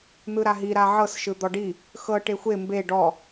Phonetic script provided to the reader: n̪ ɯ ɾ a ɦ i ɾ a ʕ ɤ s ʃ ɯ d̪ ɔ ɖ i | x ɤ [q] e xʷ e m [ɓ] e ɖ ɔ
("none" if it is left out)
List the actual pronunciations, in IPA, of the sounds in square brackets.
ʈ, b

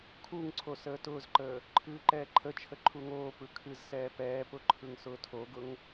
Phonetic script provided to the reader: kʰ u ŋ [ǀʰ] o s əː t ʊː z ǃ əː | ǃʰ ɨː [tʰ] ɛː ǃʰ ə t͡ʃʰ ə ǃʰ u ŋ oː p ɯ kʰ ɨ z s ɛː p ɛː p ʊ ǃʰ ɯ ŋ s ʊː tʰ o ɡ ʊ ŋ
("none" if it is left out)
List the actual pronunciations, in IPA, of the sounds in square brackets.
ǀʰ, ǃ

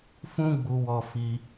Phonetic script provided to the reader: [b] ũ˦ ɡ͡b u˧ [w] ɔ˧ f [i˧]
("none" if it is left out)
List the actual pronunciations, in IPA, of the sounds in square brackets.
f, w, i˧

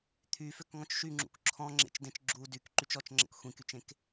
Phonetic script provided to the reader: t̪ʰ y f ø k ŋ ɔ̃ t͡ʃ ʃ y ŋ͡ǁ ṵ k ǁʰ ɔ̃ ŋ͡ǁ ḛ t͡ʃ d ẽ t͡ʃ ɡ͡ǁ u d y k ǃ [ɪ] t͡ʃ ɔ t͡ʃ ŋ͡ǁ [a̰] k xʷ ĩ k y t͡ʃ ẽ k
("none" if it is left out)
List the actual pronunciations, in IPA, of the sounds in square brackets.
y, ə̰

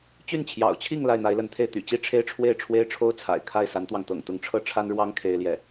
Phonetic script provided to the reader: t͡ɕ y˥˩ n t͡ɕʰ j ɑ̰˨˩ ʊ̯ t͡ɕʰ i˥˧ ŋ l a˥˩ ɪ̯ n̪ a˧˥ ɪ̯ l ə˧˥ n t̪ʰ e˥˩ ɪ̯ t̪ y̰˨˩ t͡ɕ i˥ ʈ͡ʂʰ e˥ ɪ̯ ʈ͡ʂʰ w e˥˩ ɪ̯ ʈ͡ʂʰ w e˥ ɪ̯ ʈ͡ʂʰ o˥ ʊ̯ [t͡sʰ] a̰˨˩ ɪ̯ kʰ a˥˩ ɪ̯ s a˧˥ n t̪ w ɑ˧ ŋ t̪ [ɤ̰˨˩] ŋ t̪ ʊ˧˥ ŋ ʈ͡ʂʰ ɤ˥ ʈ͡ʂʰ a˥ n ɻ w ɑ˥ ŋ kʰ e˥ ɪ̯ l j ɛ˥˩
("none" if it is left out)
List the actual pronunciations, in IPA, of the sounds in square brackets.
t͡sʰ, ɤ̰˨˩

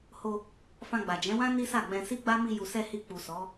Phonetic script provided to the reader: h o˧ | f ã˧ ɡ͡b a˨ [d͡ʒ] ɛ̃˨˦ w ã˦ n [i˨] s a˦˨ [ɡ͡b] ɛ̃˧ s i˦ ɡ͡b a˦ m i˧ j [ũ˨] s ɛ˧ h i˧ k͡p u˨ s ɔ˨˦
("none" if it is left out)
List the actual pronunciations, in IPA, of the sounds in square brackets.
d͡ʒ, i˦, ɡ͡b, u˨

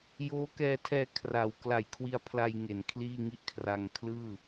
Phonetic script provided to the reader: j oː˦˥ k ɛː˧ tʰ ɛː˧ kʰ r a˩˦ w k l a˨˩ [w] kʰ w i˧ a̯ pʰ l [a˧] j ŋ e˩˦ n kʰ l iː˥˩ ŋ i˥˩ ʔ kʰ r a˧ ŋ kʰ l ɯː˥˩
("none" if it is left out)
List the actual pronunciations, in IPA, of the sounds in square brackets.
j, a˧

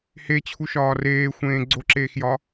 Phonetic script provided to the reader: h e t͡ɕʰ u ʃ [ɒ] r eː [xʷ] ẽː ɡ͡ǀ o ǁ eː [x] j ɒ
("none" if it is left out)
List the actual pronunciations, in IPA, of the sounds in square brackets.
ɒː, xʷ, x

